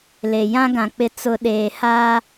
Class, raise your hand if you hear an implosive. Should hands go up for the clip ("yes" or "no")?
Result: yes